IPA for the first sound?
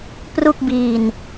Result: p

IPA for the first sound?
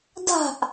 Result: d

